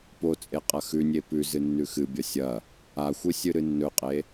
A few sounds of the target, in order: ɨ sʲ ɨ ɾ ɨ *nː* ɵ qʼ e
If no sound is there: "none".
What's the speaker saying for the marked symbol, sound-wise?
nː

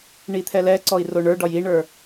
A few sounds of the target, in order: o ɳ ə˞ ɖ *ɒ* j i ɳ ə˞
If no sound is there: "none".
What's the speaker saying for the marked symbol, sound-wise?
ɒ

